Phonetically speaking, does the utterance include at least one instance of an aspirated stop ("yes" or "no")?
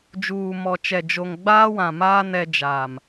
no